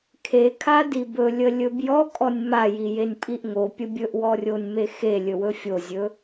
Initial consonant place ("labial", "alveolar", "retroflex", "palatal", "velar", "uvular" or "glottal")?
velar